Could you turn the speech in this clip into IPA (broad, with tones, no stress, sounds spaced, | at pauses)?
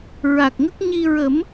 ɹ a˨˩ k̚ ŋ ə˦˥ k̚ ɲ i˧ ɹ ə˨˩˦ m